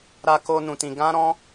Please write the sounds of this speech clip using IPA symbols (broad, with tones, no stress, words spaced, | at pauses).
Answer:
ɾa˧ko˧ nũ˧tĩ˧ɡã˦ɾɔ̃˦